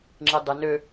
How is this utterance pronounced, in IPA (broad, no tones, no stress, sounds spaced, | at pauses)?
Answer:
ŋ͡ǁ i dˤ ɪ n ø